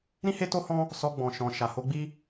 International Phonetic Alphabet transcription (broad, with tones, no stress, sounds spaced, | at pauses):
ɾ ĩ˦ h e˦ t o˦ h ɔ̃˦ | s ɔ˧ ɡ͡b ɔ̃˨ ʃ ɔ̃˨ ʃ a˨ h o˧ ɡ͡b i˦